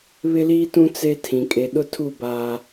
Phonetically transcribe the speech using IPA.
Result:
β ɪ˦ l iː˦ t ũ˦ t͡s e˦ tʰ ĩ˨ kʼ e˨ ɗ ʊ˦ tʰ u˦˨ b a˦

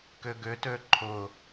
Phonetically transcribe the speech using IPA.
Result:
k ʏ ɡ ʏ t ø ǃʰ ʊ

